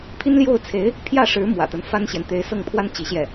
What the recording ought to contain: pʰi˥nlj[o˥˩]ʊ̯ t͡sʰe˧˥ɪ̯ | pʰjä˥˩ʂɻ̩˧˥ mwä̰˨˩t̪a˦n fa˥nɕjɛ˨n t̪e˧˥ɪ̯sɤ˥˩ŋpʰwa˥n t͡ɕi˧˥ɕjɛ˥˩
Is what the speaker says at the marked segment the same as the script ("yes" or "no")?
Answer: yes